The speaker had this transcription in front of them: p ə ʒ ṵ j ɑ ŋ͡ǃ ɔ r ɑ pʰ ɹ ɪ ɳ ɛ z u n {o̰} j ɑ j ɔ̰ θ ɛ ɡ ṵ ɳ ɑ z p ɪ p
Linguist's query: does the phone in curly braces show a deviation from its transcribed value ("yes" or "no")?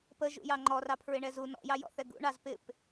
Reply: yes